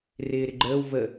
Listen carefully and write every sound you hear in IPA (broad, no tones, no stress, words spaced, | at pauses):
rɪːɾɪɡ͡ǃəːw və